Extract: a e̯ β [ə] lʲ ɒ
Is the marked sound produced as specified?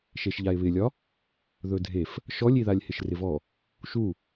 no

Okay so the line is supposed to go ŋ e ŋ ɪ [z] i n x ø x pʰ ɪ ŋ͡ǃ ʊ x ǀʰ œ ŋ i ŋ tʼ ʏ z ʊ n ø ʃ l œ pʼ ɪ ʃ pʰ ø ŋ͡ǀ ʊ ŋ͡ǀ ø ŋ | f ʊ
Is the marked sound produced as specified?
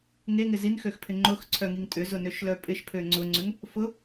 yes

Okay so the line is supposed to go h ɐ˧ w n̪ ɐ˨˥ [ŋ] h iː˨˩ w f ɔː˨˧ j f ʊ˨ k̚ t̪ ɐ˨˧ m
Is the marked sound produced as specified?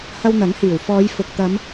yes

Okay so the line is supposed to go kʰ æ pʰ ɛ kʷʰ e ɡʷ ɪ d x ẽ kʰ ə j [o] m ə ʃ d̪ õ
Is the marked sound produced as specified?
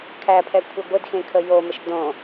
yes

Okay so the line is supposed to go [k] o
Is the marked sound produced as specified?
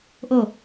no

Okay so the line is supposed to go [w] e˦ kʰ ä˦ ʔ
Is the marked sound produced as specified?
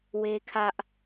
yes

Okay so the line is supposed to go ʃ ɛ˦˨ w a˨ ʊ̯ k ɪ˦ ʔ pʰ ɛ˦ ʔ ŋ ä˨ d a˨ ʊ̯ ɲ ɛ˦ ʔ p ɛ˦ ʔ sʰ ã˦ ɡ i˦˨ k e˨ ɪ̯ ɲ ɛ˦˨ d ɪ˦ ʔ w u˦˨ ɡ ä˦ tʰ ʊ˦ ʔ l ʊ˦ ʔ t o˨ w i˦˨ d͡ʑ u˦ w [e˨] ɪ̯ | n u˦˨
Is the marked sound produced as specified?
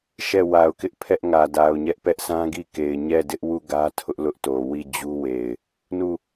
yes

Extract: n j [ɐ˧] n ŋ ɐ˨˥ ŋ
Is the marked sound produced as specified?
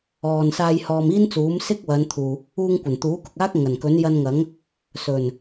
yes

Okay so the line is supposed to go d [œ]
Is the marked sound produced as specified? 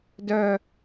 yes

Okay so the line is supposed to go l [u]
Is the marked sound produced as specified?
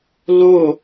no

